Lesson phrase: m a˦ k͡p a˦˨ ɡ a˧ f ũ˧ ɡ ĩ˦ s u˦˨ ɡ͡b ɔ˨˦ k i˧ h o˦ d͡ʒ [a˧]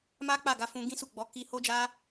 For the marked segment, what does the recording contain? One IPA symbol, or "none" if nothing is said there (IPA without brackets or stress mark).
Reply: a˦